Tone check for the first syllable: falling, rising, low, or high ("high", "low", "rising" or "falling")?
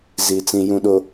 low